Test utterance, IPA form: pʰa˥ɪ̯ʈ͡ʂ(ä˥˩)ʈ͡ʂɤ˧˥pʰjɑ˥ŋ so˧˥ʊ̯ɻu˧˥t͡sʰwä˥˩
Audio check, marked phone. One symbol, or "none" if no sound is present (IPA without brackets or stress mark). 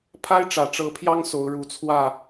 ä˨˩